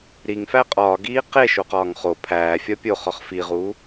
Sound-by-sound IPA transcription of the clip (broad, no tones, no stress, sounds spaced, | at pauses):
ɾ i ŋ f æ qʼ ɒː ɡ iː q e ʃ o q ɒː ŋ χ o pʰ æː fʲ ɒ pʲ o χ ɒ χ f i ʁ u